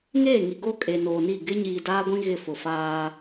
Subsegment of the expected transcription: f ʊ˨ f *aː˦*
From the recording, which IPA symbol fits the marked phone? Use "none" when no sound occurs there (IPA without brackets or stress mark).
aː˦